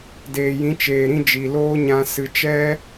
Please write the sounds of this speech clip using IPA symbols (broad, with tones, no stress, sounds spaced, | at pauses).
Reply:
d eː˨ j ĩ˨˦ t͡ʃ eː˨ ɾ ĩ˧ d͡ʒ i˨ l oː˦ ɲ ã˧ s ɨ˧ t͡ʃ ɛ˦